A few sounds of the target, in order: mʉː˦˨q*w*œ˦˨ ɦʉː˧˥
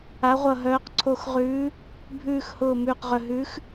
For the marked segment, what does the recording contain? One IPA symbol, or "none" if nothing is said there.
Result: ʁ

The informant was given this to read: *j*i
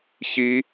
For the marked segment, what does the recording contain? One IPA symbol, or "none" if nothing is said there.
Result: ç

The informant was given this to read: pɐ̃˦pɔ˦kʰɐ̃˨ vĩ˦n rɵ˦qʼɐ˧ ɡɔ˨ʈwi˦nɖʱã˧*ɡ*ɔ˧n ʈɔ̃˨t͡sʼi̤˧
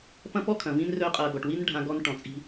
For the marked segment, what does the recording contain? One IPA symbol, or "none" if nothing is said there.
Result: ɡ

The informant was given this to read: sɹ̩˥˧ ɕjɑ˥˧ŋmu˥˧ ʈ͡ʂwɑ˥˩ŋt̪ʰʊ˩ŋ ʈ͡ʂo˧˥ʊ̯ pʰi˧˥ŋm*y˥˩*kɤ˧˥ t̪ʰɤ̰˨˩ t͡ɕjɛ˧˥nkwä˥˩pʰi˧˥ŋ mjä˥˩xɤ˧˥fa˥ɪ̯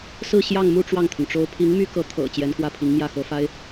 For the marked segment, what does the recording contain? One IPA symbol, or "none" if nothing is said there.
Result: y˥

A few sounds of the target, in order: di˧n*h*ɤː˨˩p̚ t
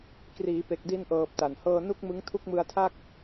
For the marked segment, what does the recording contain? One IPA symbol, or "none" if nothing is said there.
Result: ʔ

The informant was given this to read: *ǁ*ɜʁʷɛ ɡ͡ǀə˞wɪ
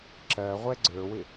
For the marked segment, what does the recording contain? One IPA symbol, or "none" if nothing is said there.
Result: ǁ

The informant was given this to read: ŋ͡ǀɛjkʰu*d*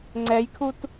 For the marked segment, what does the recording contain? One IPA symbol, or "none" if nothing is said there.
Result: t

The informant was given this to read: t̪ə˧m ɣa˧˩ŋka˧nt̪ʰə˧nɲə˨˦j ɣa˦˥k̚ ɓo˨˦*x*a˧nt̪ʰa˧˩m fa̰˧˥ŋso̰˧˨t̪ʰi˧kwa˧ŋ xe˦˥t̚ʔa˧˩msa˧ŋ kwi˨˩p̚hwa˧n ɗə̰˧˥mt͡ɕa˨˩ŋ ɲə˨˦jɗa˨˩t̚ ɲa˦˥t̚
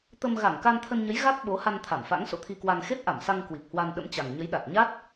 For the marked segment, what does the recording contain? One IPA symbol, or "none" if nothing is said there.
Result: h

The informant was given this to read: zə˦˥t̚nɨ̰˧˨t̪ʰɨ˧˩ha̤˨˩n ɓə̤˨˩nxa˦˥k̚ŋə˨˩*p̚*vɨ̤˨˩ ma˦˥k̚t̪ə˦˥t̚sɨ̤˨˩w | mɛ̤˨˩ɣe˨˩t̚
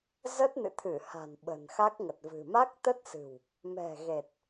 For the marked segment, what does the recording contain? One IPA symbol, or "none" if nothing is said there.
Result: t̚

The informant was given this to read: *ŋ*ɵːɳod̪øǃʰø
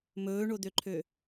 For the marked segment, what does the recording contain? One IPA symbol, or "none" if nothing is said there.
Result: m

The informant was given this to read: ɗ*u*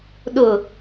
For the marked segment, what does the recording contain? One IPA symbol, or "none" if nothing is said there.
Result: ʊ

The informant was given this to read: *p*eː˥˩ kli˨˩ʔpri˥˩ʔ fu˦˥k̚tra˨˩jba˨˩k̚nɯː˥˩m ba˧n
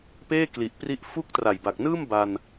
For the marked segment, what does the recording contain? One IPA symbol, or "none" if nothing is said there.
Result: p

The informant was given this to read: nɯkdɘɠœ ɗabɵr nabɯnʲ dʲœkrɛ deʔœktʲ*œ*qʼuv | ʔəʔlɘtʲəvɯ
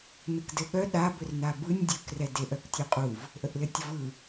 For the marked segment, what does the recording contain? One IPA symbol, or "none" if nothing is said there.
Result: œ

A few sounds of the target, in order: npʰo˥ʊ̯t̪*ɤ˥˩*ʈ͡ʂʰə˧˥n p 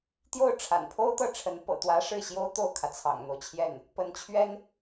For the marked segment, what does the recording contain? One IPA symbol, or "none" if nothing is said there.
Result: ɤ˥˩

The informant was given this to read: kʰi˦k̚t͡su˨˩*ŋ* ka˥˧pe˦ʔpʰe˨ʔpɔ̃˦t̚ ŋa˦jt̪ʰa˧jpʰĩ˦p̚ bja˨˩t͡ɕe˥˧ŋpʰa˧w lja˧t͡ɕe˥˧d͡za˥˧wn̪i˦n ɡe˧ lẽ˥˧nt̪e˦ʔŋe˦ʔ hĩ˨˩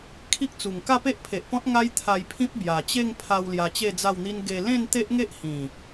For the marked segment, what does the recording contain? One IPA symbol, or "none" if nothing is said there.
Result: ŋ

